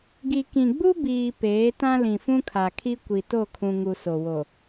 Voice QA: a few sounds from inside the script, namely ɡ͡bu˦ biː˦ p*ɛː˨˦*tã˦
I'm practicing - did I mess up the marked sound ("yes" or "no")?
yes